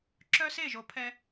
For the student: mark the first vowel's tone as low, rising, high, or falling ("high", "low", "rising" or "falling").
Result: high